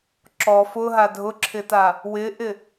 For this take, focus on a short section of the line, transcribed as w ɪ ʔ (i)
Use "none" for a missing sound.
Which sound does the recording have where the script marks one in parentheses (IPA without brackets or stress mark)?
ɪ